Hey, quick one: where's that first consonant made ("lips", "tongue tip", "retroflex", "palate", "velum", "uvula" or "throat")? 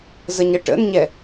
tongue tip